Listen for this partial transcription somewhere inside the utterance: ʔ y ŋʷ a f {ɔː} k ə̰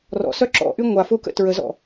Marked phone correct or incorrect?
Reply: incorrect